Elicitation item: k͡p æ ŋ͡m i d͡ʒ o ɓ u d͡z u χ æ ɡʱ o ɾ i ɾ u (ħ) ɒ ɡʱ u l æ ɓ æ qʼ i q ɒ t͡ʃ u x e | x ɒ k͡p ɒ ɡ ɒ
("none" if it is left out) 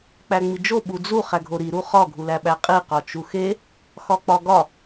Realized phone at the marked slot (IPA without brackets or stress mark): χ